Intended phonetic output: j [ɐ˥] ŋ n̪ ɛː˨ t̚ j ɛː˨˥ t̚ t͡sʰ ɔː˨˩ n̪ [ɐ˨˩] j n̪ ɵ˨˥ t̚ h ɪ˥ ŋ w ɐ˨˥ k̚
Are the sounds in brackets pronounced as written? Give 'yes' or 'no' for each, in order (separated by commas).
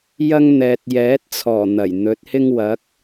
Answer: yes, yes